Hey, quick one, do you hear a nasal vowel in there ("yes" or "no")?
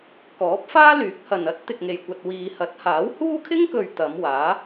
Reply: no